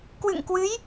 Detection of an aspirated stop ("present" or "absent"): absent